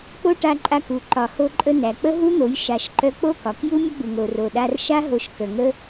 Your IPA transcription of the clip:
k͡p o˦ ʈ a˧ ǃʼ a˧ k u˨ ǃ ɒ˨ h o˧ ǃʼ ə˧ n æ˨ k͡p ə˦ ɦ u˦ n̪ o˨˦ j ʃ a˨ ʃ ǃ œ˧ k͡p o˦ k ɒ˨ k j u˦ mʲ ə˦ ɡ͡b u˨ ŋ o˨ r o˨ ɗ a˧ r ʃ a˦ ɦ o˧ ʃ k ə˨ ŋ ə˦

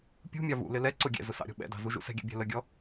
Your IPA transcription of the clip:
pʲ ṳ mʲ ɑ v ṵ l ɪ l ɛ ǀ ʊ ɡʲ ɛ̰ z ʊ s ɑ̰ ɾʲ ɔ̤ ɓ ɛ̰ d ɑ̤ z u ʒ ṵ s ɛ̤ ɡʲ æ̰ bʲ æ̤ l ə ɡʲ ɔ

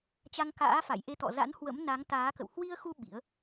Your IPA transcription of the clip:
t͡ɕ a˧ ŋ k a̰ː˧˥ f a̰˧˨ j ʔ e˧ t̪ ɔ̰˧˨ z a̰˧˥ n h w ə̰˧˥ m n a˨˦ ŋ t̪ aː˨˦ k ə̰˧˨ w h w i˧ ə̯ x u˧ ɓ ḭ˧˥ ə̯

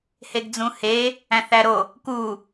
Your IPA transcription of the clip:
h e ɡ d͡z ũ h e | æ̃ θ æ ɾ o | k u

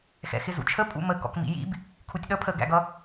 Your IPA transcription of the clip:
x ɛ̰ x ɪ z ṵ t͡ʃʰ ə pʼ ṵ m ə k ɔ̰ k m ḭ j ḭ b | kʰ u tʲ ɗ ʌ pʰ ə ɡ æ̰ ɡ ʌ

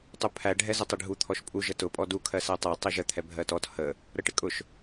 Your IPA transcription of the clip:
tˤ u pʰ æ ɖʱ ɛ z ə tˤ ɪ ɖʱ u t̪ʰ ɔ ʃ pʼ u ʒ ə t ʊ pʼ ɔ d u kʰ ɜ s æ tˤ ɛ tˤ i ʒ ə t̪ʰ ɛ bʱ ɜ t ɔ t h ə | ɾ ə ʈ ɪ kʼ ʊ ʃ

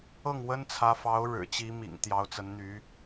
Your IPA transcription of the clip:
ɤ˥˩ ŋ w ə˥ n t͡sʰ ä˧˥ f ɑ˧˥ ʊ̯ ɻ ɻ̩˨˩ t͡ɕ i˧˥ m ḭ˨˩ ŋ t̪ j ɑ˧˥ ʊ̯ t͡s ə˧˥ n n̪ y˧˥

